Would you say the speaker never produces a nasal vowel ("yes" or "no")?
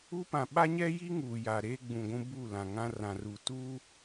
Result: no